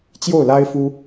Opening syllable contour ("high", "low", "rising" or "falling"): falling